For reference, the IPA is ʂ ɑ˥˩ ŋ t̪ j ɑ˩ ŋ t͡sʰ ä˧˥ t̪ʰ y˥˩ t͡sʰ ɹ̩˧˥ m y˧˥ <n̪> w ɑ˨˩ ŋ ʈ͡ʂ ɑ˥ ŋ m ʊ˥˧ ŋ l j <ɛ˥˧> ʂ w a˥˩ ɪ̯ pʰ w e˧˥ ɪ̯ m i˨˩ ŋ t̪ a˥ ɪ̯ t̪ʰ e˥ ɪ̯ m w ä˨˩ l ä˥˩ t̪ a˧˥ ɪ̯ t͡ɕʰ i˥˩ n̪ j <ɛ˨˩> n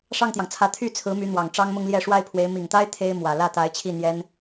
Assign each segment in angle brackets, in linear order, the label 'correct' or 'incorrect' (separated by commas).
correct, correct, incorrect